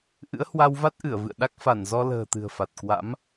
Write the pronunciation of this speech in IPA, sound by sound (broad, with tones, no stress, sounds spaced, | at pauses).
ʔ ɨ̰˧˥ ə̯ h w a˧ w v a˦˥ t̚ ʔ ɨ˧˩ ə̯ v ɨ̰˧˨ ə̯ ɗ a˦˥ k̚ f a˧˩ n z ɔ˧ l ə̤ː˨˩ t̪ ɨ̤˨˩ ə̯ f a˨˩ t̚ k w a̰˧˥ m